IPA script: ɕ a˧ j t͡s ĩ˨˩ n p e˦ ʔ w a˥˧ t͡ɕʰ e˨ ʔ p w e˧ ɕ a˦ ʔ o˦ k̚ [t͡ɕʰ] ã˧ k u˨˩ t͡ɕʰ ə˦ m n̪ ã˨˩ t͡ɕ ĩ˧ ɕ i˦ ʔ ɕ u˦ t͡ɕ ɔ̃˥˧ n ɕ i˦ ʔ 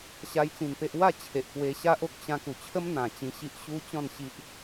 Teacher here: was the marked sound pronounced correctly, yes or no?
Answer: no